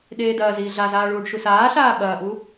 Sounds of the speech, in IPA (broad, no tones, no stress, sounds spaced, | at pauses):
ɗ eː d ɐː z iː ɮ a z aː ɭ uː ɖ ʃ u s aː ɬ aː ɓ ɐː ʔ u